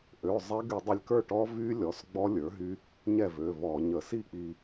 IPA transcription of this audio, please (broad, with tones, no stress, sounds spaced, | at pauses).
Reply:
ʔ ø˩˧˩ zˤ ɛ˦˥ ɡ y˧˩˧ dˤ ə˧ lʲ k ə˞˥˩ ʈ ɔ˦˥ v y˦˥ lʲ ɔ˩˧˩ s ɡ͡b ɔ˦˥ lʲ ə˞˩˥ ɦ y˦˥ | ɲ ɛ˥˩ v ø˩˧˩ v ɔ˧˩˧ ɲ ə˧˩˧ s i˥˩ k͡p i˧